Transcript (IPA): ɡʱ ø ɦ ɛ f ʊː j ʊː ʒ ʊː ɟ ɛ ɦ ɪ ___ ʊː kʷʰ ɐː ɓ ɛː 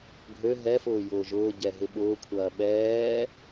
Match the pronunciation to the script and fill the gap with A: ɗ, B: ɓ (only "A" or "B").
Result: B